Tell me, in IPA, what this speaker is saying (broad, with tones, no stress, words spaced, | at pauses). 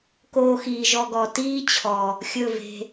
koː˧xiː˨ ʒɔ˧ɡɔ˨ tiː˦t͡ɕʰɔ˨ | xʲɵ˦˨ve̤˧